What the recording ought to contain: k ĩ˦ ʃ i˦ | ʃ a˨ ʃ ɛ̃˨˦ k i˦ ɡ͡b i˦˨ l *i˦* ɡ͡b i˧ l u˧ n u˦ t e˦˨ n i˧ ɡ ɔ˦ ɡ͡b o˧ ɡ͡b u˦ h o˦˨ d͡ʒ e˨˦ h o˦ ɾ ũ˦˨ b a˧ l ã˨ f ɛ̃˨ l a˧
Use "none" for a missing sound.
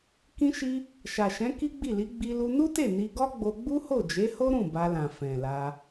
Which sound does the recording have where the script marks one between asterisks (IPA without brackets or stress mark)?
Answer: i˨˦